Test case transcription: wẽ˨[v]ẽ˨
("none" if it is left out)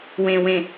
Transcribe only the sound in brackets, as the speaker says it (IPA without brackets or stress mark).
w